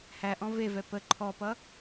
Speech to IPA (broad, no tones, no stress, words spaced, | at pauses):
hæʔɔ̃ vevɛ pə ǃʰɔpʌ